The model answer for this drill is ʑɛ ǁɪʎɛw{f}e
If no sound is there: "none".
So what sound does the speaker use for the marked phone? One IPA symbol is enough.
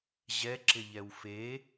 f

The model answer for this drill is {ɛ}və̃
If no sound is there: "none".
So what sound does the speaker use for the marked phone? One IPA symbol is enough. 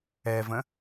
ɛ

